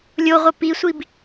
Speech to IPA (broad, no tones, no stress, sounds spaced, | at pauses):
lʲ o ʁʷ ə p i sʷ i b